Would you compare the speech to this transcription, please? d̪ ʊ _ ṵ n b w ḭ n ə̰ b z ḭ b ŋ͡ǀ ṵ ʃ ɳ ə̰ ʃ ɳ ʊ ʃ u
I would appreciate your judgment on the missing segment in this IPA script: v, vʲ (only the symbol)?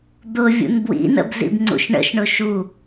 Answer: vʲ